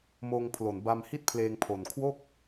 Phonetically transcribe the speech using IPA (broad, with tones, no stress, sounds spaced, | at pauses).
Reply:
m oː˧ ŋ pʰ l o˨˩ n b a˧ m h i˥˩ t̚ pʰ l eː˧ ŋ pʰ o˨˩ n kʰ w o˥˩ k̚